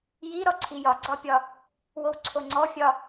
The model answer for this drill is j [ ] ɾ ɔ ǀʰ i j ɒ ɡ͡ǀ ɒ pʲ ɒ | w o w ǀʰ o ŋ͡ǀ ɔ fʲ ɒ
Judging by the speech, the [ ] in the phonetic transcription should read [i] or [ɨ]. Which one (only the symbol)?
i